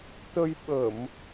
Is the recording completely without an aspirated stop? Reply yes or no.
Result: yes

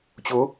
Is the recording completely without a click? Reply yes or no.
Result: yes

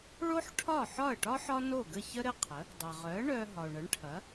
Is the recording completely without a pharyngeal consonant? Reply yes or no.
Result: no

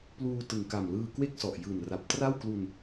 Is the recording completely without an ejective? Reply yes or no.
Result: yes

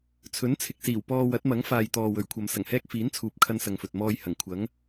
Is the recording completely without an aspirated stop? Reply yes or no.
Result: no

